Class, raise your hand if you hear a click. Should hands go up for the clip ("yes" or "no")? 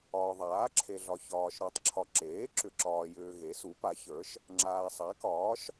yes